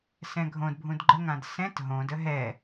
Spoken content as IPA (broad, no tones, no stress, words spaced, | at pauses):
sɛ̃ɡʱõdbʱũd ɡ͡ǃəŋãd sɛ̃t ɦõdə ɦɛ